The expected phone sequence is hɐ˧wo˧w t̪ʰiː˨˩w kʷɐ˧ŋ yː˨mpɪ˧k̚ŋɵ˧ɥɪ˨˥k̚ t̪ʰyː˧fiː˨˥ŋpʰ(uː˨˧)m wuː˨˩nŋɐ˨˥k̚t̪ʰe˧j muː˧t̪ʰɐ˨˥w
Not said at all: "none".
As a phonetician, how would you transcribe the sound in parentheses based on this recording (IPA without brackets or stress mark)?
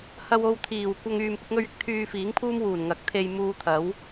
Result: uː˥